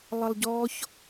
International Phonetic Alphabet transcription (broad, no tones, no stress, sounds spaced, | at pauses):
lˠ ə lˠ ɟ ɔ ç